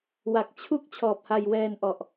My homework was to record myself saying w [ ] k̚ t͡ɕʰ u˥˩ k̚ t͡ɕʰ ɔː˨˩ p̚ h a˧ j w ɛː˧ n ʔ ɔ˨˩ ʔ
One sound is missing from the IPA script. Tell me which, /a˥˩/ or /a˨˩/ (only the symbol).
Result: a˨˩